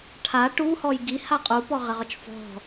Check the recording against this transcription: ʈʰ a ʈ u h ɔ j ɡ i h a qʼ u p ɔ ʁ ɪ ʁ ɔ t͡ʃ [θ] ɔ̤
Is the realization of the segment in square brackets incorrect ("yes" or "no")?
yes